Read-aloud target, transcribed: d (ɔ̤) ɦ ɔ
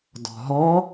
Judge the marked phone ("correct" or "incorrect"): correct